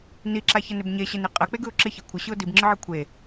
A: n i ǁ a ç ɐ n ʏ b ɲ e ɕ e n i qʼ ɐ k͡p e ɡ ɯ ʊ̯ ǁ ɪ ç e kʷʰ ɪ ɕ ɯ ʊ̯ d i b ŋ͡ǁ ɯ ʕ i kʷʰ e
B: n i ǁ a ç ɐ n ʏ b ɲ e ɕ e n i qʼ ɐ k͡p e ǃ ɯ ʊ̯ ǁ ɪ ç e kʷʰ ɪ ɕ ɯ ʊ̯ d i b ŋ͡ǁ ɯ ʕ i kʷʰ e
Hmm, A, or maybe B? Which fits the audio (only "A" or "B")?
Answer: A